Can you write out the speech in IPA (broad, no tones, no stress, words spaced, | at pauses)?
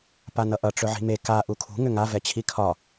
panʌʔʌ ʈ͡ʂɵʕi̤me ka ʔukʰṳ ŋʏŋa vɛt͡ɕʰikʰɒ